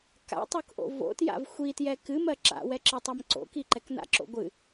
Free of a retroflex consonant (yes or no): yes